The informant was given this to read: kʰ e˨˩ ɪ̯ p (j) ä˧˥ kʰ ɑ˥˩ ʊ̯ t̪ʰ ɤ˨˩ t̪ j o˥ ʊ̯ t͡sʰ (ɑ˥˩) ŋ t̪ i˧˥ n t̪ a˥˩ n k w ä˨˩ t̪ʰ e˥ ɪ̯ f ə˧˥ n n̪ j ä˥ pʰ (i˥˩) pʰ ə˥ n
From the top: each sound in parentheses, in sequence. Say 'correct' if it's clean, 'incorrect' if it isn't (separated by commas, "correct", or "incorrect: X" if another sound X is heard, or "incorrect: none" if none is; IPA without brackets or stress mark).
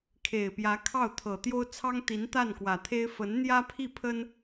correct, incorrect: ɑ˥, correct